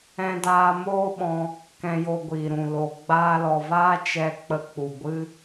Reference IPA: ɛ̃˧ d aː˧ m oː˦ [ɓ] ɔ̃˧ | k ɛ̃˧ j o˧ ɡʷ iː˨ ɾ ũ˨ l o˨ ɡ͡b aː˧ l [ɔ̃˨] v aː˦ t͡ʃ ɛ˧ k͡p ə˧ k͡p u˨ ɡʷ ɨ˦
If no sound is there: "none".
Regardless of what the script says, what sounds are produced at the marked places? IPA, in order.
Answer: ɓ, ɔ˨

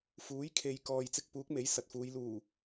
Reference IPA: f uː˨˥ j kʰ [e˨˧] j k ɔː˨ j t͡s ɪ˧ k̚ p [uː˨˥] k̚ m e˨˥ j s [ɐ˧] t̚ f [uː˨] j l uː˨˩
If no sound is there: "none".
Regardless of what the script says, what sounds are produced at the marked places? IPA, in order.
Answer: e˨, uː˨˥, ɐ˨, uː˨˧

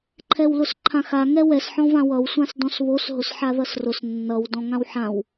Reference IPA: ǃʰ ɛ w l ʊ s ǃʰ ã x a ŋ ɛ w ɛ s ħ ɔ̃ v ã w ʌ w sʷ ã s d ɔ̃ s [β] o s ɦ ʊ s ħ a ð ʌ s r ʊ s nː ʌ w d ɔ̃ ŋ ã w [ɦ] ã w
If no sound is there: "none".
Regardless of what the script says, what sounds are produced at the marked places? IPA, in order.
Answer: β, ħ

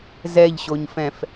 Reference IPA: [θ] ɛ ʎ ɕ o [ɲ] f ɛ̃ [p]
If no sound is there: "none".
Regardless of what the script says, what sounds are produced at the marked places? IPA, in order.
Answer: z, ɲ, f

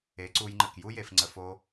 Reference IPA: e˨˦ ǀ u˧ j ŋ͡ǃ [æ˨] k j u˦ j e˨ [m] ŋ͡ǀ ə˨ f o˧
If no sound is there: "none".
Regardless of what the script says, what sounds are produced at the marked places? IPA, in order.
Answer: ə˨, f

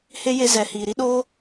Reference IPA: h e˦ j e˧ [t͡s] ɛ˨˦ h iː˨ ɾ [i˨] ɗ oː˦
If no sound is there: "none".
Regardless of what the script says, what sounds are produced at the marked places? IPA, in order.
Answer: z, i˦

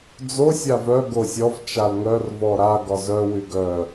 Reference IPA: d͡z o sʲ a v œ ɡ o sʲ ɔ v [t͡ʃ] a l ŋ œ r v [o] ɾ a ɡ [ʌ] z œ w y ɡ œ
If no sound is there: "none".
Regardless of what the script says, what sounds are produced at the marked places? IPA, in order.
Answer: t͡ʃ, ɔ, ɒ

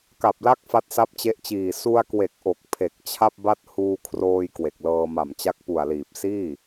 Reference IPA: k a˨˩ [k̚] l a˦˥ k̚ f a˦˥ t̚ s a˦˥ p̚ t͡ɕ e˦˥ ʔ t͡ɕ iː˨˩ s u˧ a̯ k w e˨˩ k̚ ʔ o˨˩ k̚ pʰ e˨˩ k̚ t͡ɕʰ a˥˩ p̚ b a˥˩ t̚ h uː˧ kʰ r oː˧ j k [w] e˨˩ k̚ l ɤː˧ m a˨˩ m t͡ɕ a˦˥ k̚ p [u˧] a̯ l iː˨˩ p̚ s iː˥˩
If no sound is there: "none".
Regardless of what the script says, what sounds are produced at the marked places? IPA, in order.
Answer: p̚, w, u˨˩

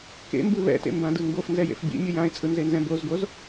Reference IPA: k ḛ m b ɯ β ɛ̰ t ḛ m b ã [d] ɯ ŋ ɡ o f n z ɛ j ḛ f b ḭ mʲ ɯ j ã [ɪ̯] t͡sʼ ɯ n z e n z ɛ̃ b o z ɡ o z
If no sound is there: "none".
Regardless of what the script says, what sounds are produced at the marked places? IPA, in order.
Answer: d, ɪ̯

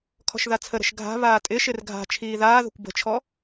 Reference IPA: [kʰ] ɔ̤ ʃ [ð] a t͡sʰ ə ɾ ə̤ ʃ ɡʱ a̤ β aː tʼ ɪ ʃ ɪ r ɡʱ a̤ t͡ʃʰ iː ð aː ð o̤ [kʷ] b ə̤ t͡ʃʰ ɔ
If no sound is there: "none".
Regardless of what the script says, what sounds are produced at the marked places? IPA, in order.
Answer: kʰ, ð, kʷ

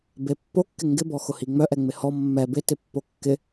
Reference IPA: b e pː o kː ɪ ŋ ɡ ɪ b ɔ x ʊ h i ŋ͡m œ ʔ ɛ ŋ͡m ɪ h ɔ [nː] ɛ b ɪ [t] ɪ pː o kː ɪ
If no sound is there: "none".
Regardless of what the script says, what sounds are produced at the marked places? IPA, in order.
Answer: mː, t

